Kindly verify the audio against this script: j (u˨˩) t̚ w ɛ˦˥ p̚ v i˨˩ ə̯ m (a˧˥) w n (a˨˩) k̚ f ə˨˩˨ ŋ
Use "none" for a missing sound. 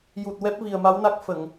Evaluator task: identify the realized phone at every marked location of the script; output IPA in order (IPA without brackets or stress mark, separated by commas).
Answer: u˨˩, a˧˥, a˦˥